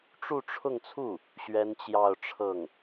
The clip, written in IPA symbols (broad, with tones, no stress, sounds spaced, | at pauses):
ʈ͡ʂ u˥˧ ʈ͡ʂʰ ʊ˥˧ ŋ t͡sʰ u˥˩ | ɕ ɥ ɛ˥ n t͡ɕ j ɑ˥˧ ʊ̯ ʈ͡ʂʰ ɤ˥˩ ŋ